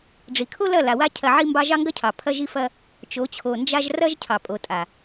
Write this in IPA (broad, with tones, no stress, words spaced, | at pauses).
ɖ͡ʐi˨kʰo˦lɐ˦˨ la˨wa˦ cʰɐ˧ʕi˦mbɑ˦ ʒɑ˦ŋɡɐ˦cʰɑ˨ pʰɐ˦ʒi˦fɐ˦ | t͡ʃo˨˦t͡ɕʰo˨nd͡ʒa˦ʒ rɐ˦ʒ cʰɑ˨pʼo˨tʼa˨